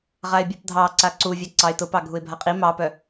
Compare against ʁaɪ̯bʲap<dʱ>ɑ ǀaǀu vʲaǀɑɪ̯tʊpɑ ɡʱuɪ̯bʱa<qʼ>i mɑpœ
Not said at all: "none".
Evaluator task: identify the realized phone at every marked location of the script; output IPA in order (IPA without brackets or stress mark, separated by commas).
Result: dʱ, qʼ